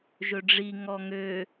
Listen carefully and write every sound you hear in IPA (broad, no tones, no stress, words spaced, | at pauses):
ʒɵɖ͡ʐi ŋɔŋø